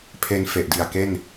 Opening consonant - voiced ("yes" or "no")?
no